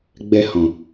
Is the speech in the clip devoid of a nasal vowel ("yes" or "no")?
no